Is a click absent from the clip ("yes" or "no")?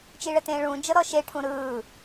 yes